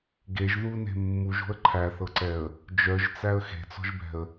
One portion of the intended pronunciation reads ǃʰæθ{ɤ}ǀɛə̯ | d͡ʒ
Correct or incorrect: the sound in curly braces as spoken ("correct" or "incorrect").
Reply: correct